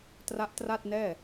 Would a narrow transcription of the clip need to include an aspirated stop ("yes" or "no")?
no